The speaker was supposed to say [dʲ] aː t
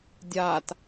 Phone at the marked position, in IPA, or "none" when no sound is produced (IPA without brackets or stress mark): dʲ